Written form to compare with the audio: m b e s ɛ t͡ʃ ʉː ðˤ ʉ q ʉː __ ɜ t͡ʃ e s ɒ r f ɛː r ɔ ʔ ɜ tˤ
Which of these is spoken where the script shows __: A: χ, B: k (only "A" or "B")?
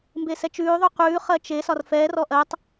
A